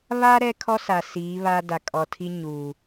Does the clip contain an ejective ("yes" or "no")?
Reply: yes